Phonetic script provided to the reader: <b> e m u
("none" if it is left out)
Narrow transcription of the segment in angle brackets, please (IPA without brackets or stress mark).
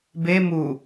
b